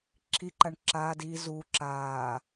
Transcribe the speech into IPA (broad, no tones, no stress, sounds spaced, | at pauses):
ǁʰ i ǃ a ɳ ǁ aː d iː z u ǁ aː